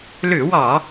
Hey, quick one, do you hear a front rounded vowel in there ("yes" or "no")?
yes